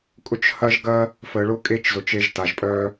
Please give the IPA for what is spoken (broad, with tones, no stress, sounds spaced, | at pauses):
kʼ ʊ˦ t͡ʃ h ɐ˦ ʒ ɡ ɐ˦ | f ə˨ ɭ ʊ˥ kʼ e˥ t͡ʃ z ʊ˨ t͡ʃ e˦ ʒ t a˩ ʒ pʼ œ˥